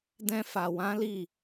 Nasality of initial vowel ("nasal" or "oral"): nasal